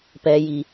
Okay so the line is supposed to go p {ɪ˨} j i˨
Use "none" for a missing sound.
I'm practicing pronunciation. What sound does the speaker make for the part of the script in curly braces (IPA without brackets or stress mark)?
ɛ˨